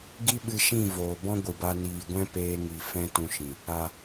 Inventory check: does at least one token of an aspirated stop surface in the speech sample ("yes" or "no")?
no